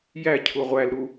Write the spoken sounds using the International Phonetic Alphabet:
j æ cʰ u ʁʷ æ l ɾ u

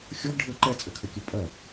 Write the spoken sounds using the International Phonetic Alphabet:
xʲ ɔ ɡ ɖʱ ɘ ǃ ɛ t͡sʼ ɘ kʰ ə kʲ ɘ pʼ ɜ

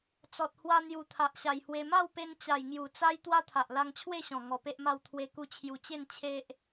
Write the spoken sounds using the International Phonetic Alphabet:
t͡s ɔ˨ t̚ h w a˧ n̪ j u˨˩ t̪ʰ a˨ ʔ ɕ a˨˩ j h w e˧ m a˥˧ w p e˧ n t͡ɕ a˨˩ j ŋ j u˨˩ t͡s a˦ j t̪ w a˦ t̪ʰ a˨ ʔ l a˧ ŋ t͡ɕʰ w e˥˧ ɕ ɔ̃˨˩ ŋ ɔ˧ p e˦ ʔ m a˥˧ w t̪ʰ w e˧ k u˧ t͡ɕʰ j u˧ t͡ɕ e˥˧ n t͡ɕʰ e˦ ʔ

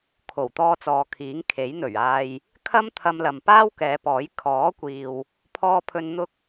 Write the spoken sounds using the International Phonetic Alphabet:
kʰ o˨˩ w t̪ ɔː˧ t͡s ɔː˨˧ kʰ iː˨˥ ŋ kʰ e˨˥ j n̪ ɵ˨˩ ɥ aː˨ j | kʰ ɐ˥ m t̪ʰ ɐ˧ m l ɐ˨ m p aː˥ w k ɛː˨˧ p ɔː˨˥ j kʰ ɔː˨˥ kʷ iː˨ w | pʰ ɔː˥ pʰ ɵ˥ n n̪ ʊ˥ k̚

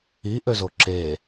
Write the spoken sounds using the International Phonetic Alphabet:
i ʔ ø z o ǁ e

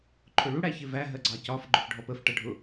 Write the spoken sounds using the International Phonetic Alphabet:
ǃʰ ʊ ɭ u ɽ æ ç ɪ v æ ɦ ɜ ɡ͡ǀ ɑ c ɒ f ɡ͡ǃ ʊ f ɖʱ ɔ p ə f ʈ ʌ ɖʱ ʊ

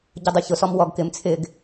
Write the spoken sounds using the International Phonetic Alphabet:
ɟ ʊ dˤ u ç ʊ s ɔ m w ɔ ɡ k ɪ m t͡sʰ ɪ ɡ

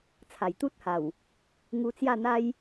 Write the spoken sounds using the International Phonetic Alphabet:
t͡sʰ a˨˩ j t̪ u˦ t̚ h a˨˩ w | ŋ u˧ t͡s j a˥˧ n̪ a˦ j

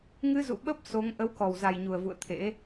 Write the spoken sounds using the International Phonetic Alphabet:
ŋ ɨ˧ z ṵ˧˨ ɓ ə˦˥ p̚ s o˨˦ ŋ ʔ ə˨˦ w k ɔ˨˩ w z a˨˩ j ɲ u˨˩ ə̯ v ṵ˧˨ ə̯ t̪ʰ ḛ˧˥

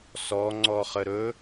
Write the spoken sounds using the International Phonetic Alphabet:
s ɔ ŋ͡ǀ ɔ χ ə ɾ ɵ

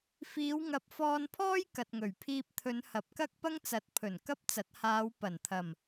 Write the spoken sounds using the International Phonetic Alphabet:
f iː˨˧ w ŋ ɐ˨ p̚ f ɔː˧ n pʰ ɔː˥ j k ɐ˨ t̚ ŋ ɵ˨˩ ɥ pʰ iː˧ p̚ t̪ʰ ɵ˨˧ n h ɐ˨˥ p̚ k ɐ˥ k̚ p ɐ˥ ŋ t͡s ɐ˨˥ t̚ pʰ ɵ˨˩ n k ɐ˥ p̚ t͡s ɐ˨˥ t̚ h aː˨˧ w p ɐ˨˩ n t̪ʰ ɐ˨˩ m

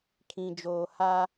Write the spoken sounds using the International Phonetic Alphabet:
kʰ ĩ˨ d͡ʒ oː˨ h a˦

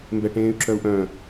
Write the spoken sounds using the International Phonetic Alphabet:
m b ɛ ʈ ẽː y̯ ǁ œ u̯ ʔ œ̃

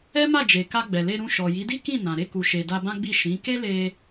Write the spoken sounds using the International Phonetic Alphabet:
ɛ˦ m a˦˨ d͡ʒ e˨ k a˧ ɡ͡b ɛ˨ l e˧ ɾ ũ˧ ʃ ɔ˨ j i˨˦ d i˦ k ĩ˦˨ n ã˨ ɾ e˧ k u˨ ʃ e˨ d a˧ b ã˦ ɡ͡b i˦˨ ʃ ĩ˨˦ k e˦ l e˧

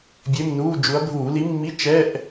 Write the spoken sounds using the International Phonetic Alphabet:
bʲ e˧˥˧ m n uː˧˥˧ d͡ʒ u˨˥ ɐ̯ bʱ uː˧˩˧ l i˨˥ mː i˧˥˧ t͡ʃ ɛ˧˥˧ ʔ

